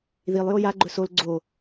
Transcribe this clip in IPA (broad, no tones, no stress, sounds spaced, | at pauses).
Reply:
ð i lˠ j o j a ɡ͡ǃ ɵ s o l ɡ͡ǀ o